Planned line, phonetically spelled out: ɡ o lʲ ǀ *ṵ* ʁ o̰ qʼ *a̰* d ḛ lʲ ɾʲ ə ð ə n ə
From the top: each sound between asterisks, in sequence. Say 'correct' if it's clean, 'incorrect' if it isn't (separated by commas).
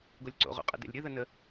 incorrect, incorrect